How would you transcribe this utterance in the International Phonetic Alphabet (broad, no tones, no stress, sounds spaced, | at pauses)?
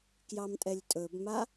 k j ɑ m tʼ ɛ lʲ tʼ ɵ b m a